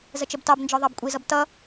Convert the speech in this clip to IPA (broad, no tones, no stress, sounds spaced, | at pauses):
z ə t͡ʃ ə b t ɑ b n d͡ʒ ɒ ðˤ ɑ b kʷʼ i z ʌ b t ʌ